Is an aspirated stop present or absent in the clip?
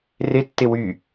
absent